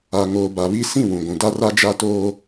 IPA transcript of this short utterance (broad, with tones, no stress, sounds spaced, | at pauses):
a˨ ŋ oː˨ b a˨ β i˦ s ĩ˦˨ w ũ˨ ɡʷ ũ˨ d a˦ r a˦ d͡ʒ a˦ t oː˦